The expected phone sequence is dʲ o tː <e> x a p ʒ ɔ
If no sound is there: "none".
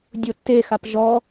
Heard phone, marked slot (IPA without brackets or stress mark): e